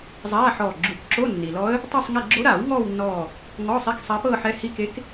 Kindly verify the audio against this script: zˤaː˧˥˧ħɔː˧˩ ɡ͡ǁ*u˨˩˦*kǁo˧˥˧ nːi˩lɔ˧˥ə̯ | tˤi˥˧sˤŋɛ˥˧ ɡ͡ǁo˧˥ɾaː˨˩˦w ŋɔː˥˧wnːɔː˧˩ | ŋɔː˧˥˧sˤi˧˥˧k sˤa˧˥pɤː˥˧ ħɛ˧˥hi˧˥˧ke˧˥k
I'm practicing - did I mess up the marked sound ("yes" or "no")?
no